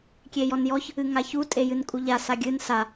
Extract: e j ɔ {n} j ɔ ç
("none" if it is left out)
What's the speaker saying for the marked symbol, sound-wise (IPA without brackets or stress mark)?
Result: n